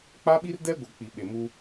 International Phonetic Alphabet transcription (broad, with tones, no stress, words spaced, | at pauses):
k͡pa˦ɓi˦rdɛ˦ɡʷɛ˨ k͡pi˨ɓe˨muː˦